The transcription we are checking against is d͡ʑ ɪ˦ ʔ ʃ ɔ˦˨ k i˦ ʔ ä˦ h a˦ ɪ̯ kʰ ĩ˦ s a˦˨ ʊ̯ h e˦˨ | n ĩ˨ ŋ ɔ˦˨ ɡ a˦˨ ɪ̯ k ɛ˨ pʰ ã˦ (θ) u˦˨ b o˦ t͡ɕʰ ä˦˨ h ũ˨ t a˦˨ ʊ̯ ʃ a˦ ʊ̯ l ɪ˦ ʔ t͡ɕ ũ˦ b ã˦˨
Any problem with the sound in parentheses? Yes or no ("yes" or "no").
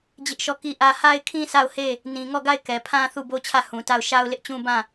no